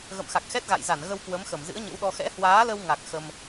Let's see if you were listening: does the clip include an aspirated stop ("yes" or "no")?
no